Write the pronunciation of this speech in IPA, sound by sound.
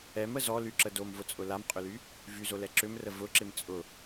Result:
ɛ m ə z ɔ l y ǁ ə d o m v ʊ t͡sʼ ʊ l a m qʼ ʏ l y | v y z o l ɛ ǁ ʏ m r ə v ʊ ǁ ɪ m t͡sʼ ʊ

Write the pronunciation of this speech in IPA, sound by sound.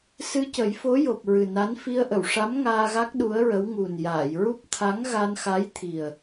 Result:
s ɨ˧ c ə˨˩˦ j f o˧˥ j o˨˩ p̚ ɹ ɨ˨˩ n a˧˥ n f i˧ ə̯ ʔ ə˨˩˨ w ʂ a˧˥ m ŋ aː˧ ɣ a˦˥ k̚ ɗ u˧˥ ə̯ ɹ ə˧˥ w ŋ u˨˩ n j aː˨˩˨ j ɹ u˦˥ p̚ t̪ʰ a˧˥ ŋ ɣ a˧ n x a˧˥ j t̪ʰ i˨˩ ə̯

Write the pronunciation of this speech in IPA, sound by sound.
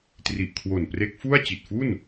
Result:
t r i˨˩ ʔ kʰ w o˨˩ n p r e˦˥ k̚ f u˥˩ a̯ t͡ɕ i˨˩ t̚ f u˥˩ n

